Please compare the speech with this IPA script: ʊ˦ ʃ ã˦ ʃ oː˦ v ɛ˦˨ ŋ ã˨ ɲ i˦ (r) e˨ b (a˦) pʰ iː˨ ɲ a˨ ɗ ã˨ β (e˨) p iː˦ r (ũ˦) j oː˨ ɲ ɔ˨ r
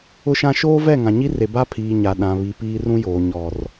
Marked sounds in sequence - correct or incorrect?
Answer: correct, correct, incorrect: i˨, correct

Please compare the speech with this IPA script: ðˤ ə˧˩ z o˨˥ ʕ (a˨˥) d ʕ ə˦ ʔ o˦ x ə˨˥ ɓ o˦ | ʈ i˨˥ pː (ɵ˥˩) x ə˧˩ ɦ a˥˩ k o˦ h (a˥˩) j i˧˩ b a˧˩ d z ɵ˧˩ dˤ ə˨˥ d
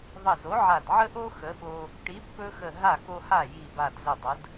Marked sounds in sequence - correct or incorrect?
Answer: incorrect: a˧˩, incorrect: ɵ˦, correct

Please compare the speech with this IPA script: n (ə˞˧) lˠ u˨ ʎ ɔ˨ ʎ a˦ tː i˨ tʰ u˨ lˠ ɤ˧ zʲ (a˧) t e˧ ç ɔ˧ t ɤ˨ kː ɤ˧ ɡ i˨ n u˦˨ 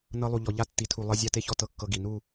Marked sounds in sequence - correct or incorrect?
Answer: incorrect: ɤ˧, correct

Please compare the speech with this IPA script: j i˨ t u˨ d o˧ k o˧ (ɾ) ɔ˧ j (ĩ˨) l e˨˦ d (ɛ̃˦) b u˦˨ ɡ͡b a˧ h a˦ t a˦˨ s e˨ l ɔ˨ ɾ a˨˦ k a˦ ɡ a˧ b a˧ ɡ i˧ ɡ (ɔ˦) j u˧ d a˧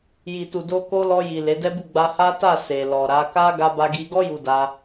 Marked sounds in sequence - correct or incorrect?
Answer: incorrect: l, incorrect: i˨, incorrect: ɛ˦, correct

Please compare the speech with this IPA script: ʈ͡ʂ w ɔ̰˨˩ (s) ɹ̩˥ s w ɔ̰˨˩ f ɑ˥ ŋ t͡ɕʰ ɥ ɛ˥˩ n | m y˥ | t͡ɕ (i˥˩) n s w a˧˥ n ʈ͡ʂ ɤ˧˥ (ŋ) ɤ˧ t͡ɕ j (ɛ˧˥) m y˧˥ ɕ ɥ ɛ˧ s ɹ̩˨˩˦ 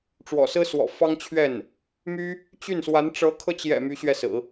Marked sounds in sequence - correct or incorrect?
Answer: correct, incorrect: y˥˩, incorrect: kʰ, incorrect: ɛ̰˨˩

